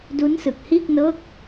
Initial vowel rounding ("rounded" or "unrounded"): rounded